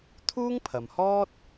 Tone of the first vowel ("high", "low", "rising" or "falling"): high